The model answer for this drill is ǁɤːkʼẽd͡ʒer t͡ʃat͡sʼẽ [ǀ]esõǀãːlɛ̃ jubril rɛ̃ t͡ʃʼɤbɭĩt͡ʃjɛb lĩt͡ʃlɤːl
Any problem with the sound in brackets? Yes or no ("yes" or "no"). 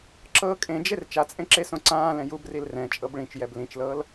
yes